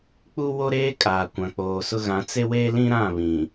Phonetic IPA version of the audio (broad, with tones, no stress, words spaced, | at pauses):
k͡pu˦wo˦ɾeː˦ kʼaː˨kʷã˨ k͡poː˨sʊ˦ ɣã˨˦t͡se˦weː˦lĩ˦ ɾã˦˨ βĩ˨